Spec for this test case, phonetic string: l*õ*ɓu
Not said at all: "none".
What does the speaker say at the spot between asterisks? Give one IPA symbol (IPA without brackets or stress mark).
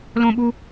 õ